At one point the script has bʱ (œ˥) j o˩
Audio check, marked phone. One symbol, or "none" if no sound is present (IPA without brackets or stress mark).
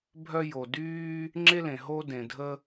œ˥